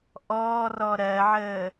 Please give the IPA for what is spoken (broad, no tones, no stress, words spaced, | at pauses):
ʔɔːrɔ ɾɜʕəː